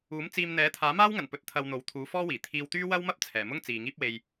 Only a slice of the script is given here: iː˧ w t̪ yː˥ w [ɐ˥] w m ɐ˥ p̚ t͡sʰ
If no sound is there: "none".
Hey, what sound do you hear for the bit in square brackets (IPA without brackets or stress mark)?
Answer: ɐ˥